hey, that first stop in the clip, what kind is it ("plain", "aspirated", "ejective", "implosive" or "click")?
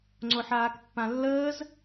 click